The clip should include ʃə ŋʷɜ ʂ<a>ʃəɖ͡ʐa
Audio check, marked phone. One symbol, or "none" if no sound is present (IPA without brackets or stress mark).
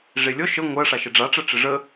a